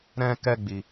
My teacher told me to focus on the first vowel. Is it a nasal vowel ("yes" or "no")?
yes